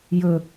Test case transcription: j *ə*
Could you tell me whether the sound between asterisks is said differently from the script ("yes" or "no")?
yes